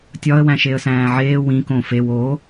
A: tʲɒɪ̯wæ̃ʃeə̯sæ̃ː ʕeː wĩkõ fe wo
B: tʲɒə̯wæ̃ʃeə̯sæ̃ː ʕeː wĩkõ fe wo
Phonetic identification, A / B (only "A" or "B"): B